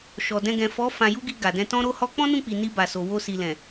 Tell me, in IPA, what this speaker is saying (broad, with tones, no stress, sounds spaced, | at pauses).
ʃ ɔ˨ d ɛ̃˧ ɡ ɛ̃˨ f ɔ˨˦ f ã˧ j u˦ ɡ i˧ ɡ a˨ d ɛ̃˧ t ɔ̃˦ ɾ o˦ h ɔ˦ k͡p ɔ̃˦ n ũ˦˨ k͡p i˨ n i˧ b a˨ s o˨ w o˧ s i˨ l ɛ̃˨